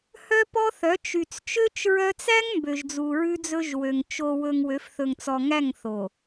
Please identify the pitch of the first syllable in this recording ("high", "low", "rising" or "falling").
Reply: high